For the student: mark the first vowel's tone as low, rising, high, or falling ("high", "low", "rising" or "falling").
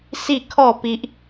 falling